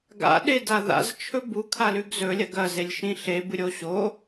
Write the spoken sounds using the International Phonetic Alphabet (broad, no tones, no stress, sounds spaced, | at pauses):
ɡ a̰ ɗ e d a ð a̰ z t͡ʃʰ ɵ b u kʰ a l ʉ ɡ z ɵ lʲ ɐ ɡ ɐ z e lʲ ʃ ĩ ɬ e b ɨ ɾʲ o ɕ o